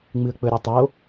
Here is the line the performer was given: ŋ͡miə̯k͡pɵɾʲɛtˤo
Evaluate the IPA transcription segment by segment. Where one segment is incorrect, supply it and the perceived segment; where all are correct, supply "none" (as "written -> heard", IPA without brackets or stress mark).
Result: i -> ɨ